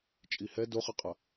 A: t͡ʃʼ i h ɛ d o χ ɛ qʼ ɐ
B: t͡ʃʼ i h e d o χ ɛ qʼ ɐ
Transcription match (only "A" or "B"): A